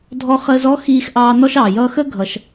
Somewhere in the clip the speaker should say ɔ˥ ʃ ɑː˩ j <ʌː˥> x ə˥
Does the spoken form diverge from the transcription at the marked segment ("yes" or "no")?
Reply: no